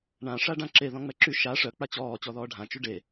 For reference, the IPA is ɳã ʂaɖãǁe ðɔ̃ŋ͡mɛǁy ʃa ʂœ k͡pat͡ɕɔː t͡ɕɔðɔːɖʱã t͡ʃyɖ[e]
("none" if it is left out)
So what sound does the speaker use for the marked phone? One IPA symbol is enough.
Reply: e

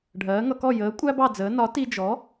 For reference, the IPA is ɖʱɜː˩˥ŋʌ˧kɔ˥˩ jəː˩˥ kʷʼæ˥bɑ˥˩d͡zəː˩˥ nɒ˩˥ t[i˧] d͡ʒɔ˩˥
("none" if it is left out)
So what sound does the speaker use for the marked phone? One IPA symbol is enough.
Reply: i˧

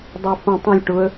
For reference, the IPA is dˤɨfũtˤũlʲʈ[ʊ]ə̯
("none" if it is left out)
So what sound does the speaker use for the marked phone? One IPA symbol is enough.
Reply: ʊ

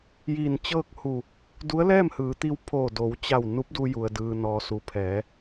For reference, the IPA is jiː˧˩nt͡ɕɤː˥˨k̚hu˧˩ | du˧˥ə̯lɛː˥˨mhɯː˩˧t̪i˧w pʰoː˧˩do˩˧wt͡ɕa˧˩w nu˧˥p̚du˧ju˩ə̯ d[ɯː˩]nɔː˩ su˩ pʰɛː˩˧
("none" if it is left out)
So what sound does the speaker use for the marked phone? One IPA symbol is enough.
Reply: ɯː˩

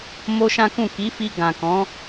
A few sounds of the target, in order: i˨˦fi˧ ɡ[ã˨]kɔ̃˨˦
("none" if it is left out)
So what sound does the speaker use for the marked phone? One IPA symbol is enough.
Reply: ã˨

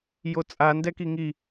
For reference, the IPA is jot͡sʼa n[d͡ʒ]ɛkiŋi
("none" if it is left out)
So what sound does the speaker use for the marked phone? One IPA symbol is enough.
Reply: d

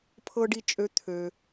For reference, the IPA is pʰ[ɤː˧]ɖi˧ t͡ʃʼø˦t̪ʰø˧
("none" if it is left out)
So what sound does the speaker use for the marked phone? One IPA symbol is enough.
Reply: ɤ˧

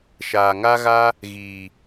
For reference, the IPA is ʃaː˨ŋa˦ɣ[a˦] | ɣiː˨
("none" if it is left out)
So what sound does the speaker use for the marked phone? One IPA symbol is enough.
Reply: a˦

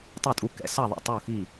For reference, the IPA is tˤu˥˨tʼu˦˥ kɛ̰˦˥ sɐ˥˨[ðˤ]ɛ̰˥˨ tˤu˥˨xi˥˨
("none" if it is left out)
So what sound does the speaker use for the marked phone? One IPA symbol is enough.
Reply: ðˤ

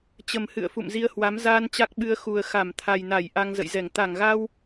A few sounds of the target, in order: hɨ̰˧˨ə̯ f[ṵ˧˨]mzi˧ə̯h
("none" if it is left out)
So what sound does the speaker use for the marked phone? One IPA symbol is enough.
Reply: ṵ˧˨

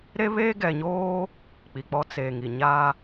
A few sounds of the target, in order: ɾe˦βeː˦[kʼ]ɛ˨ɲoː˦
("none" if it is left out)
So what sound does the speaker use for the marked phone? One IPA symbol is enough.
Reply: ɡ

